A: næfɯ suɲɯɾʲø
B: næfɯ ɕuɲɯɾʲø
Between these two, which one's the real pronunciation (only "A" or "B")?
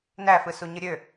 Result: A